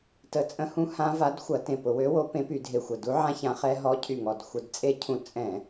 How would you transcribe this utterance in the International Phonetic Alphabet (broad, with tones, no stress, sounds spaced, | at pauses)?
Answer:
t ə˧˩˧ t͡sʼ ə̃˦˥ h ũ˦˥ h ã˦˥ v a˨˥ d xʷ ɐ˧˩˧ t ẽ˧˩ p ʊ˧˩˧ w ø˨˥ w o˨˥ p ẽ˨˥ p y˧˩˧ dʱ e˧˩ xʷ ə˧˩ d u˦˥ ʕ ã˦˥ ç ã˨˥ χ ɛ˦˥ ɦ ɔ˦˥ cʰ y˧˩ ŋ ɔ˧˩ d xʷ ə˧˩˧ d t͡sʼ e˦˥ cʰ ũ˧˩ t͡sʼ ɛ̃˧˩˧